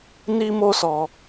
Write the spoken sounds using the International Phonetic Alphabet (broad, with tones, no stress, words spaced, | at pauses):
ni˦mo˦sɔ˧